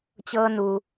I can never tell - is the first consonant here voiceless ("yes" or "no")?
yes